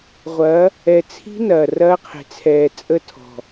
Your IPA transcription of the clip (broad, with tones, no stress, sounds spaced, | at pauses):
ʁʷ ɐ˨˦ | ɛ˨ t͡sʰ i̤˦ n ɐː˨ r ɐː˦ qʰ e̤˨ t͡sʰ ɛː˨ t͡sʼ ə˦ tʰ ɔ̤˨